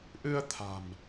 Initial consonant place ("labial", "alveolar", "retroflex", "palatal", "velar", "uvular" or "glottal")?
glottal